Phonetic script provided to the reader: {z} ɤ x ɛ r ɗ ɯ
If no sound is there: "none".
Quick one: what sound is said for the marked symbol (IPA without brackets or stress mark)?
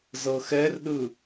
z